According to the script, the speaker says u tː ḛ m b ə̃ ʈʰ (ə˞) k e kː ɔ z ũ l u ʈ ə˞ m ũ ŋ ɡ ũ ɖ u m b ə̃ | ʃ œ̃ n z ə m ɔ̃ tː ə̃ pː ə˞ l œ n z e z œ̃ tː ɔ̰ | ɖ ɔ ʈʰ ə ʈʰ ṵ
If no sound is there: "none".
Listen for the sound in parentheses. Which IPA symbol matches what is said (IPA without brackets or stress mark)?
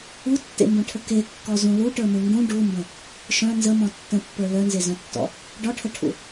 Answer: ə